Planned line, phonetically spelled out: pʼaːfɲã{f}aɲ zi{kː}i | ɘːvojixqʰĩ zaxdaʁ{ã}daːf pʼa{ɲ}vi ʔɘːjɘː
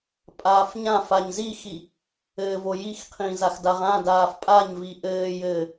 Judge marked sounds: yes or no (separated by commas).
yes, no, yes, yes